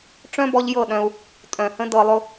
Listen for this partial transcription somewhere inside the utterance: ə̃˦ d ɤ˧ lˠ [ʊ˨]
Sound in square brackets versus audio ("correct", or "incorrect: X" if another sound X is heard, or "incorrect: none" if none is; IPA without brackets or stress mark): incorrect: ʊ˦